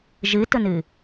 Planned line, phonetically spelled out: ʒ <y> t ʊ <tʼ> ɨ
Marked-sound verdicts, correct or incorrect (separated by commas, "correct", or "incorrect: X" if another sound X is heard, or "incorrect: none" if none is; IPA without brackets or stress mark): incorrect: ɨ, incorrect: n